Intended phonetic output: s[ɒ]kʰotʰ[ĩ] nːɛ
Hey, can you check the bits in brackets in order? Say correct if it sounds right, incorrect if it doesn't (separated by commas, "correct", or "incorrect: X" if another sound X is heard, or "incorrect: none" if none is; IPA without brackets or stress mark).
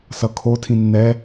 incorrect: ʌ, correct